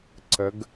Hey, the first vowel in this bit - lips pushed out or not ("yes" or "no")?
no